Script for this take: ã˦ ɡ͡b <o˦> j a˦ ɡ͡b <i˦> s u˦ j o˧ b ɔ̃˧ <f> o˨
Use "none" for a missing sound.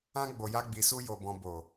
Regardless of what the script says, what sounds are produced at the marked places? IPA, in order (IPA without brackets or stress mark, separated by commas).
o˧, i˧, b